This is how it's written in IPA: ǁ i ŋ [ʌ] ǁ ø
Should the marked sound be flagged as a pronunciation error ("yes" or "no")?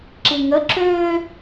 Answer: yes